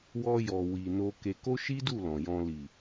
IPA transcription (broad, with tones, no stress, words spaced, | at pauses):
wɔ˧jɔ˨ wi˨no˧ke˧ ko˦ʃi˦du˦˨ lɔ̃˨jɔ̃˧ li˨